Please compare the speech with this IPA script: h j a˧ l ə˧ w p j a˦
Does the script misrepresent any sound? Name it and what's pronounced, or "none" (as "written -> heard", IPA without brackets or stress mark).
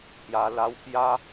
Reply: ə˧ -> a˧